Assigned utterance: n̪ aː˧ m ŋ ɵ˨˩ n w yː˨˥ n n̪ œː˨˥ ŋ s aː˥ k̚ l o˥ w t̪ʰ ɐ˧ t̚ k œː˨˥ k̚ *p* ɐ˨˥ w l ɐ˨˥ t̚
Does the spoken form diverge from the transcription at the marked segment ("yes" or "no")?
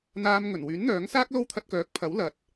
yes